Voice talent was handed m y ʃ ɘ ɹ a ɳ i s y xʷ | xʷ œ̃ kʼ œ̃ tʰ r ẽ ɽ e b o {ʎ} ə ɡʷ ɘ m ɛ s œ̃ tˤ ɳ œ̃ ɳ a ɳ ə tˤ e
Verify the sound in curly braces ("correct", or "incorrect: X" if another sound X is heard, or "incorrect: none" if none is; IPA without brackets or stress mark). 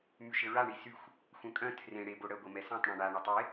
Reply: incorrect: ɽ